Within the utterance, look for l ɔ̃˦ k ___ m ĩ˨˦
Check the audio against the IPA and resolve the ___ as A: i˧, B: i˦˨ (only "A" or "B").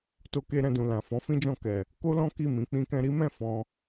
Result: B